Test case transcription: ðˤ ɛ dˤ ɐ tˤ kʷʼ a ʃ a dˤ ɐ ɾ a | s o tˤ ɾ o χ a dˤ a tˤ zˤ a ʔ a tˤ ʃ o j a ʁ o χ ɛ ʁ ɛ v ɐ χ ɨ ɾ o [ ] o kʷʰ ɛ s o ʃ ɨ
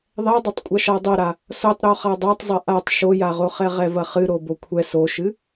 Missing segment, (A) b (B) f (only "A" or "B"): A